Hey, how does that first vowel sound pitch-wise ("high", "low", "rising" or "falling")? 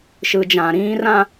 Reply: low